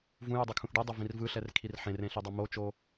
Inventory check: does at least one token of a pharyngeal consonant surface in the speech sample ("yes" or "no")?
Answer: yes